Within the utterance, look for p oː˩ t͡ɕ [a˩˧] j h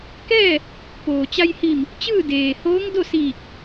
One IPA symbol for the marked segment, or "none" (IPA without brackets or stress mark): a˧